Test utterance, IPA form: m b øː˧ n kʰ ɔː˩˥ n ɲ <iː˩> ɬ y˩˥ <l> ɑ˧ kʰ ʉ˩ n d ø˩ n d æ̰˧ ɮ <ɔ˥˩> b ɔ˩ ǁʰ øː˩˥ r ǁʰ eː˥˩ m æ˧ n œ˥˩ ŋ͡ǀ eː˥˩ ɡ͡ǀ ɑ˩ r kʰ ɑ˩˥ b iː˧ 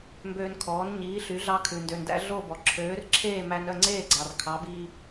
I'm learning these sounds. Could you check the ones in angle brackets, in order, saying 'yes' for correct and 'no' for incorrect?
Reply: no, no, no

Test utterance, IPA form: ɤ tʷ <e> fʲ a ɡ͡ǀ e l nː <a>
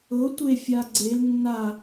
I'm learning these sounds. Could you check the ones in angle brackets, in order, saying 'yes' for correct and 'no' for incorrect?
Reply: yes, yes

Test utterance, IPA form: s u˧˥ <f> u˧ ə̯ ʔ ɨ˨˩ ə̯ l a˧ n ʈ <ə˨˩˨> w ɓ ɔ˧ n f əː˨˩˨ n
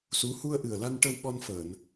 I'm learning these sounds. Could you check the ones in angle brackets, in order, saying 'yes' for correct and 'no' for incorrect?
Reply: no, no

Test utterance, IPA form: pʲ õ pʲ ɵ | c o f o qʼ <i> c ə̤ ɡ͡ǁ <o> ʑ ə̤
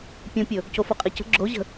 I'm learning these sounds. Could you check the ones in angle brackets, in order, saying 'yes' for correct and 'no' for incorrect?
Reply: no, yes

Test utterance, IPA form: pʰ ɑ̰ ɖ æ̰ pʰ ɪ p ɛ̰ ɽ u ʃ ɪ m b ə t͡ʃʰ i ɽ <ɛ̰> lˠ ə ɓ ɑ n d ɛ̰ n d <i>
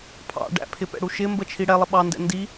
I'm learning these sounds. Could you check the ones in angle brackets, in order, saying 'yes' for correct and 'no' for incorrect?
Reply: no, yes

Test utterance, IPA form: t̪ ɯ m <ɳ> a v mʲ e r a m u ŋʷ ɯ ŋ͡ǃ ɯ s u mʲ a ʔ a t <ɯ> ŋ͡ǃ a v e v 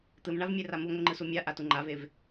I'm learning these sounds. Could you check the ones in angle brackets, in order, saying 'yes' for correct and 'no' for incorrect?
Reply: yes, no

